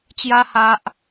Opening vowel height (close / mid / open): open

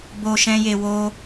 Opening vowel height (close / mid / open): mid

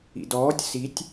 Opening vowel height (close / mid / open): close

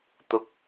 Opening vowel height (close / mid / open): close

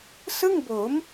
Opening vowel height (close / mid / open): close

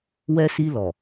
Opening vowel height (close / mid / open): mid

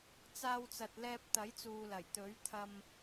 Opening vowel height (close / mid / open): open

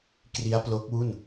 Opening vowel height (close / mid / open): close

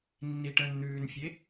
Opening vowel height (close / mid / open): close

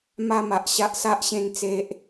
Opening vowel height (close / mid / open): open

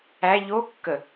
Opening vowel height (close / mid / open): open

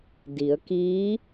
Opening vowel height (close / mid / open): close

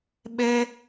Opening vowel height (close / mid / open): mid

